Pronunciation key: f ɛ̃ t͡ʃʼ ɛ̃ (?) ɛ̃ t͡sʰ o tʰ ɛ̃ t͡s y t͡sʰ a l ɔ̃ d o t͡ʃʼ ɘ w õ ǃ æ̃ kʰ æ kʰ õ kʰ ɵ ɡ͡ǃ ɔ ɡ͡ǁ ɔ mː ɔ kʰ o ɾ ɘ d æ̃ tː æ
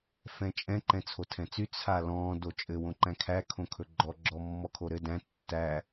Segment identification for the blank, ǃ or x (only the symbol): ǃ